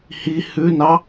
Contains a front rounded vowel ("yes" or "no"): no